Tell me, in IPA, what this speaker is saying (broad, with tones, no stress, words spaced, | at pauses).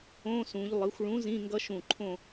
õ˧˥˧sũ˩˧ʎ lˠɯ˩˧xʷɭũ˨˥ zĩ˧˥˧ŋɡʌ˦˥ʃũ˧˩ ǃʰõ˥˨